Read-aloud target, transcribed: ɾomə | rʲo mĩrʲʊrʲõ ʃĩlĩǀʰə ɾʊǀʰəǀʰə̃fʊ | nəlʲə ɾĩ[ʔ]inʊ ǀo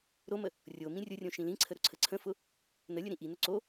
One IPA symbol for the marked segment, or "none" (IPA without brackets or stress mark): ʔ